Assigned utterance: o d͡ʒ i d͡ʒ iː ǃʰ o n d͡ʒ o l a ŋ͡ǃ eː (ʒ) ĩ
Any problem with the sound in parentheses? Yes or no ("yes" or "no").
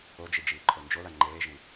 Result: no